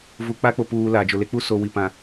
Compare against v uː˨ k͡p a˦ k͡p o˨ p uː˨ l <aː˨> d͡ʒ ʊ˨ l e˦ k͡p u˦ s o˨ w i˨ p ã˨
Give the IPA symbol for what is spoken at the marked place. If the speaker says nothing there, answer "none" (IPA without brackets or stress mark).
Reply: aː˨